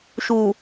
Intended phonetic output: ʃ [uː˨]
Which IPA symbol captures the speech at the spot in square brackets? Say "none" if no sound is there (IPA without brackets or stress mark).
uː˨